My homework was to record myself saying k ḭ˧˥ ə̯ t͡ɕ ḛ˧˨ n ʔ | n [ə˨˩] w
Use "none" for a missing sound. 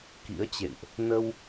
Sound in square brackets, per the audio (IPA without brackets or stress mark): ə˧